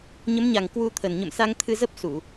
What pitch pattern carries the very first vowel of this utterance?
rising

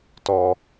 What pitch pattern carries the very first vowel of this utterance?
low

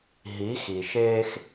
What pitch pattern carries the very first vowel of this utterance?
rising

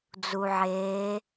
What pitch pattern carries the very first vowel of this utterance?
low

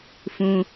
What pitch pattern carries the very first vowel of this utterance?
high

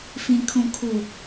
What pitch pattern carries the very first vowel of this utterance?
low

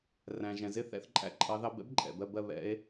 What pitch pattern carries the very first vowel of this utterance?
low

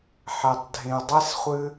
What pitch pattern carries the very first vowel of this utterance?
low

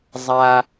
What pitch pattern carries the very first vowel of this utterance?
high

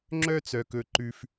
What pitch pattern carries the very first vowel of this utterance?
high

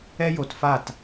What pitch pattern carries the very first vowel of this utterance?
high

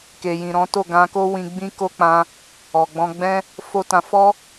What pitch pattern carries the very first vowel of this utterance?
low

